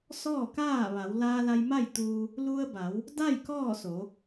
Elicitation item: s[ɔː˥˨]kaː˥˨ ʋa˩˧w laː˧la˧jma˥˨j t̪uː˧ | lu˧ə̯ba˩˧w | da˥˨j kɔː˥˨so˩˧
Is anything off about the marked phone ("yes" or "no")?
no